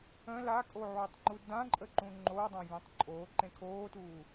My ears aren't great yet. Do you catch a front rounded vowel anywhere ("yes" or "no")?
no